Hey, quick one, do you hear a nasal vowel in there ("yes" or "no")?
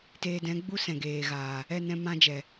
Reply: yes